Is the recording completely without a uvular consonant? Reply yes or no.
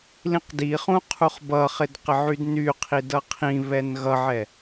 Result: no